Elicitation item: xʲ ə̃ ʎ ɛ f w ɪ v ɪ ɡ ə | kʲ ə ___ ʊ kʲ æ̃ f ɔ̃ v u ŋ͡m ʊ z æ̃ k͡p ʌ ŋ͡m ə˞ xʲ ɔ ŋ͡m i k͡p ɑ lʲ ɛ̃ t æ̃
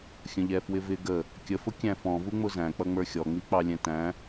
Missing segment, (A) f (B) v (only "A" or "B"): A